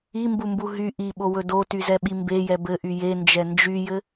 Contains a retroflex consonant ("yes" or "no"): no